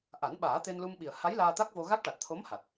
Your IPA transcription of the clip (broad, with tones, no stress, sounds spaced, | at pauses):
ʔ a˨˩˦ n ɓ aː˨˩˦ t̪ e˧ n l u˧ m ɓ i˨˩ ə̯ h a˧˥ j l aː˧ t̪ a˦˥ k̚ v o˧ ɣ a˦˥ k̚ ʈ a˨˩ t̚ t̪ʰ o˧˥ m h a˨˩ t̚